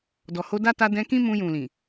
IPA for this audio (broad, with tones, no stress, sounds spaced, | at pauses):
d ɔ˨ h o˧ d a˦ t a˧ d ɛ̃˧ k ĩ˦ m ũ˧ j ũ˨ l ĩ˨